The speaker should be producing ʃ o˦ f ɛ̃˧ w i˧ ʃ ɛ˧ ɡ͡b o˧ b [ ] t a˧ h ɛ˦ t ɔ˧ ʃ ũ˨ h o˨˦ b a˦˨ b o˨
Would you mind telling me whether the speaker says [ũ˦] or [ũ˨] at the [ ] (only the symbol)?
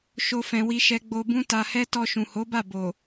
ũ˦